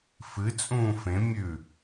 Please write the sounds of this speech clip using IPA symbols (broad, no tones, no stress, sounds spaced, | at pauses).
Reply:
f ɨ t͡sʼ ũː f ẽ mʲ ʉ